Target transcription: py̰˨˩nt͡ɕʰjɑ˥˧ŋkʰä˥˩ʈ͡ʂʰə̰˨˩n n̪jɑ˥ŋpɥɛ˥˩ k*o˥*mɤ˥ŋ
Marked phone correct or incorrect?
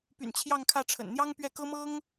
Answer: incorrect